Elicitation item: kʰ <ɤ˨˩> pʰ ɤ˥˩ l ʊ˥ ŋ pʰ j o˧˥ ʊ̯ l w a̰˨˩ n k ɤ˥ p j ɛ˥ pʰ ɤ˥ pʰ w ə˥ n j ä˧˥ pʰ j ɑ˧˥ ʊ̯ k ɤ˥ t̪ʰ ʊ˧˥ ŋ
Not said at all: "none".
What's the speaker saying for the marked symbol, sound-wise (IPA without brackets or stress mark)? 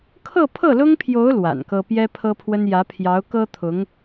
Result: ɤ˥˧